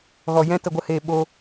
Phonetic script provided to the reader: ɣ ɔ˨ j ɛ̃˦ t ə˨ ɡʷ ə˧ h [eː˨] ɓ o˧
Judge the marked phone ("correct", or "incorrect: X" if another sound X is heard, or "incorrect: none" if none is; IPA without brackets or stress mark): correct